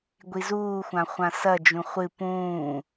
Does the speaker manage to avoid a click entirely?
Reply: yes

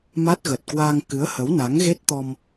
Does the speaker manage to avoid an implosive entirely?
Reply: yes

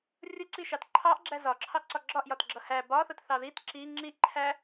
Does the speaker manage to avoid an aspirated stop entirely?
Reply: no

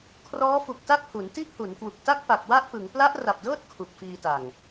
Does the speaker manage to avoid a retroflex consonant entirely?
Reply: yes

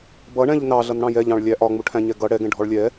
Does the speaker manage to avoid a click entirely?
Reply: yes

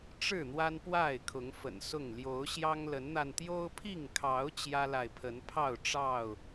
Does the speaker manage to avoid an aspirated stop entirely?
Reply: no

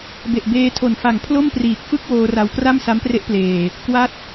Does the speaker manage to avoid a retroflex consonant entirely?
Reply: yes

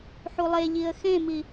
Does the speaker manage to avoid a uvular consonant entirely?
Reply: yes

